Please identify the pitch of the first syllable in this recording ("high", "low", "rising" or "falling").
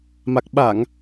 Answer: low